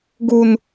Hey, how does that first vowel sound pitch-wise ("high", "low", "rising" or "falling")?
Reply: low